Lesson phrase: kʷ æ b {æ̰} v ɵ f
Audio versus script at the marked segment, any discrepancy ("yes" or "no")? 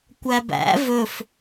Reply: no